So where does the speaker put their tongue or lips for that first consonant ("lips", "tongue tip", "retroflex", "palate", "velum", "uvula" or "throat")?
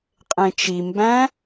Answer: uvula